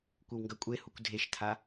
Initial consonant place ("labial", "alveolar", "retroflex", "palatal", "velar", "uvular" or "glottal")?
velar